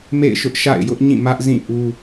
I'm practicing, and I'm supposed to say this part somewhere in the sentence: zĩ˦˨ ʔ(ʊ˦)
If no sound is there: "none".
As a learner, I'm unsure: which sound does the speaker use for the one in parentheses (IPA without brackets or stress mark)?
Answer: u˦